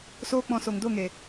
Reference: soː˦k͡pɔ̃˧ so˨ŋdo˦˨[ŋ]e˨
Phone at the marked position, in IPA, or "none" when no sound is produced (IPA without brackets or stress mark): ŋ